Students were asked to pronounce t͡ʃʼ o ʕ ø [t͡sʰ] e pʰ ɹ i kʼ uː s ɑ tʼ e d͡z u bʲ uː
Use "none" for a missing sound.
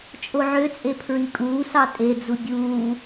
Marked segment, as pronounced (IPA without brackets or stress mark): t͡sʼ